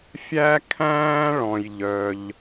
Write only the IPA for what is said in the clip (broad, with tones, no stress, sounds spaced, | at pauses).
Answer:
fʲ æ˥ kʰ æ̃ː˥ ɭ ɔ̃˩ j ʎ œ˩ ʎ